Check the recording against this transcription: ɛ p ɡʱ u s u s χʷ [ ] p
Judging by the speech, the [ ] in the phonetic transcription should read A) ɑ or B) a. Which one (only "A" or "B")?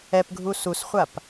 B